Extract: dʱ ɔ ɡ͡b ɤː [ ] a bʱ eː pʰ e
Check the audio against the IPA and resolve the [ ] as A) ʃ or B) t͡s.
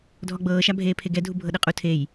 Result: A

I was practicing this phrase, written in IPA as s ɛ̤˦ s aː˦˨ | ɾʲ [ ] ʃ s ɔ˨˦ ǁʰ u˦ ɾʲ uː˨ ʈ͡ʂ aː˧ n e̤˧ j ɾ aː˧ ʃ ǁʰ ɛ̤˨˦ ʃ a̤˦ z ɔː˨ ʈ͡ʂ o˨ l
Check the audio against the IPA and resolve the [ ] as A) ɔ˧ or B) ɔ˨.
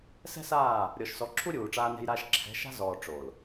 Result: B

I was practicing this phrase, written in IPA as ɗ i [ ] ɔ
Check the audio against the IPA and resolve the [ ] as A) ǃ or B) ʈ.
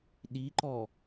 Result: A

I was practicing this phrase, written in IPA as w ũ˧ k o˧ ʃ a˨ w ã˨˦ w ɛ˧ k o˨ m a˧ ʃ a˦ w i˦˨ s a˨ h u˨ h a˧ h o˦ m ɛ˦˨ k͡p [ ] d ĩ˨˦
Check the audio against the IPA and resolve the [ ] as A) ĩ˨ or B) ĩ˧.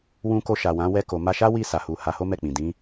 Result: A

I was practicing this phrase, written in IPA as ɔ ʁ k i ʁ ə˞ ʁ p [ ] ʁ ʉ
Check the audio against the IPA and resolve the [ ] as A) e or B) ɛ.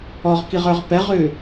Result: B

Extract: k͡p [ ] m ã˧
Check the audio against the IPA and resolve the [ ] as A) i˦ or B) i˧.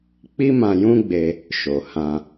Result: A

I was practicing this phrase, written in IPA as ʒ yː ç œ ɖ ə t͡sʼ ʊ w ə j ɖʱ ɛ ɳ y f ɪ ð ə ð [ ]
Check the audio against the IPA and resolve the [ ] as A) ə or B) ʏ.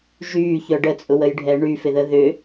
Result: B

